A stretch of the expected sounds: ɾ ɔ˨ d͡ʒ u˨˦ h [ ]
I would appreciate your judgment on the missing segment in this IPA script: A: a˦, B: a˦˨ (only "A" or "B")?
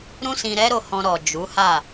B